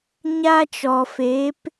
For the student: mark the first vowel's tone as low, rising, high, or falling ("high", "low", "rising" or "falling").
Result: high